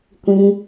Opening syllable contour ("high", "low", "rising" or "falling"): high